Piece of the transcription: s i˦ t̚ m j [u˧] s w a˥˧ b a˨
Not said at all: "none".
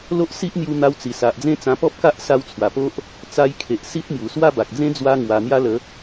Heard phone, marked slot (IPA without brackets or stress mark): u˨˩